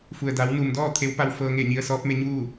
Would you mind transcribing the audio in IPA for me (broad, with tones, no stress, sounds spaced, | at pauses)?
f u˩ ə̯ d a˩˧ w n u˩ m d ɔː˥˨ t̪ʰ e˧˥ w p a˧ w f ɤː˧ ŋ e˧˩ ɲ i˧ ə̯ s ɔː˧˥ p̚ m e˧ ɲ uː˥˨